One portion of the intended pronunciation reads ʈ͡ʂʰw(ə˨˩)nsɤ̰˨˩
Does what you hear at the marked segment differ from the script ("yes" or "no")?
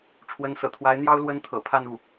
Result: yes